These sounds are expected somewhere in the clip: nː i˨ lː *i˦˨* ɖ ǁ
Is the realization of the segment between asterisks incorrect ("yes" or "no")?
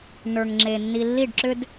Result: no